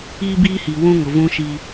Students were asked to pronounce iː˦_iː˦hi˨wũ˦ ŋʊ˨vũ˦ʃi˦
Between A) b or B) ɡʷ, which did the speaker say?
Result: A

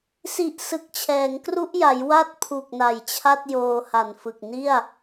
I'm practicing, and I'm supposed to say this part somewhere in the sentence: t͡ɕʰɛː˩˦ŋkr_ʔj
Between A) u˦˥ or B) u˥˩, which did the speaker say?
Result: A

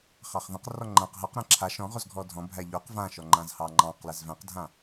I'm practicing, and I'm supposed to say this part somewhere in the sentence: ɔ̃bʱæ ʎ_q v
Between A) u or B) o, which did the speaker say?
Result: B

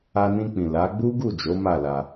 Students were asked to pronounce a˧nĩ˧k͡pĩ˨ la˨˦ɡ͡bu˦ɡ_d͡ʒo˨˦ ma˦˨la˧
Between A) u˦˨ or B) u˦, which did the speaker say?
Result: A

